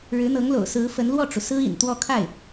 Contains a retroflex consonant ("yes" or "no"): yes